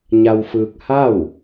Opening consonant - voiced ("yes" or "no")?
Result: yes